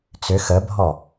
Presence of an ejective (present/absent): absent